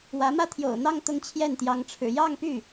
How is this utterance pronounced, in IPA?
w ä˧˥ m ä˥ t̪ʰ j o̰˨˩ ʊ̯ n̪ ɑ˥˧ ŋ t̪ ʊ˥˧ ŋ t͡ɕʰ j ɛ˥˩ n t̪ j ɑ˧˥ ŋ ʈ͡ʂʰ ɻ̩˨˩ j ɑ˥˧ ŋ p y˥˩

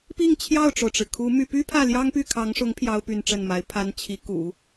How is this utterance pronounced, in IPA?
p i˥˧ ŋ t͡ɕʰ j ɑ˥˩ ʊ̯ ʈ͡ʂ o˩ ʊ̯ ʈ͡ʂ ɻ̩˩ kʰ u˧˥ m y˥˩ p y˥ pʰ ä˥˩ l j ɑ˥ ŋ p y˥˩ kʰ ɑ˧˥ ŋ ʂ ʊ˧˥ ŋ pʰ j ɑ˥ ʊ̯ p y˥˧ n ʈ͡ʂ ə˥˩ n m a˧˥ ɪ̯ pʰ a˥ n t͡ɕʰ i˧˥ k ṵ˨˩˦

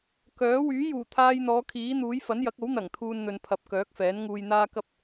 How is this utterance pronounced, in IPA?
k œː˨˥ w yː˨˥ j uː˨˩ t̪ʰ aː˧ j n̪ ɔː˨˧ kʰ iː˨˥ n̪ uː˨˥ j f ɐ˨˥ n j ɐ˨˥ k̚ o˨˥ w n̪ ɐ˨˩ ŋ t̪ʰ uː˧ n n̪ ɵ˨ n pʰ ɐ˨˥ p̚ k œː˨˥ k̚ f ɛː˨˥ n ŋ uː˧ j n̪ aː˥ k ɐ˥ p̚

